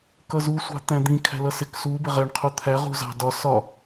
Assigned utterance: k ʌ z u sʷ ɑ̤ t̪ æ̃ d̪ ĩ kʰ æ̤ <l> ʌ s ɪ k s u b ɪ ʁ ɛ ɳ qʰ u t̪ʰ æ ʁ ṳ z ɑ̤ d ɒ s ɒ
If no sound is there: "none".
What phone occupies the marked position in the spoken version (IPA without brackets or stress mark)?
l